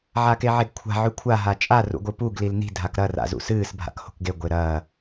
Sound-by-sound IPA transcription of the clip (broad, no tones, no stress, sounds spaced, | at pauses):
ʕ a k e ʕ e ɡ kʷʰ a̤ ʕ ʉ kʷʰ a ɦ a t͡ʃʼ a r ṵ ɡʷ ɨ p u ɡ l i l n i̤ dʱ a k ɾ ɐ r a̰ z ṵ s ɨː s bʱ a̰ k h o̤ k ɡ e ɡʷ e ɾ ɐː